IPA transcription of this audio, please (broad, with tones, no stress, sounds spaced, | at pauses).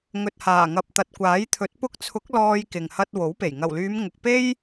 ŋ ɵ˨ t̚ h aː˨˩ ŋ ɐ˨ p̚ t̪ ɐ˨ t̚ kʷ aː˨˥ j t̪ʰ ɵ˨˥ t̚ p ʊ˧ k̚ t͡sʰ ʊ˨˥ k̚ l ɔː˧ j k ɪ˨ ŋ h ɐ˧ t̚ w o˨˥ w p e˨˩ j ŋ ɐ˨˩ w l yː˨˧ m ŋ ʊ˨ k̚ p e˥ j